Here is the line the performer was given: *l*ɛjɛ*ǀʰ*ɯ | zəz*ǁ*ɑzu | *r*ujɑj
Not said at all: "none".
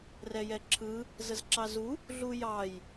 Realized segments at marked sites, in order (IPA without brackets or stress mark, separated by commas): r, ǁʰ, ǁ, ɮ